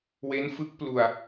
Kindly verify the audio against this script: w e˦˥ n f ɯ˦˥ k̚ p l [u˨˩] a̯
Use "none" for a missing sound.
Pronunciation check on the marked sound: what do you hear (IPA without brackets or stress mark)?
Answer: u˧